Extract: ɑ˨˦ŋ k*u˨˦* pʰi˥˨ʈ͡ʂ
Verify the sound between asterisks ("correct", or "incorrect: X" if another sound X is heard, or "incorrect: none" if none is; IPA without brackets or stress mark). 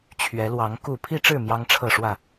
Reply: incorrect: u˥˨